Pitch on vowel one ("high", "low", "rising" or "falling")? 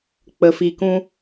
low